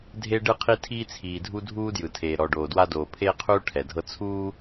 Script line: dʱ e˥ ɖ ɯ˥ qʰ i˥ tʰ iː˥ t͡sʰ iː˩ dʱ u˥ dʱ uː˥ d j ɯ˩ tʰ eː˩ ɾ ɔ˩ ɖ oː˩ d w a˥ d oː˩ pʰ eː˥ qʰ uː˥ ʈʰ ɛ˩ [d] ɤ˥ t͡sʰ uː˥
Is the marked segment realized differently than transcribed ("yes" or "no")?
yes